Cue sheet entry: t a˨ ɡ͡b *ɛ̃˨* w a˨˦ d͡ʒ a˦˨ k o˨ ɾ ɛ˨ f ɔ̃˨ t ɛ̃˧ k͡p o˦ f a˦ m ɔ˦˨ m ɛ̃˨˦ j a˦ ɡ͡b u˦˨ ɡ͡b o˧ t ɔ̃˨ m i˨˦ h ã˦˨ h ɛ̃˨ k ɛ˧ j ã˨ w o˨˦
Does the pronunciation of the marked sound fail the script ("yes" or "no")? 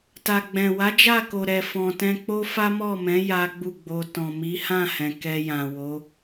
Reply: no